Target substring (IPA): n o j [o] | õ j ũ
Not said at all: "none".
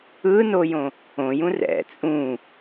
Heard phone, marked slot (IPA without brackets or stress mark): õ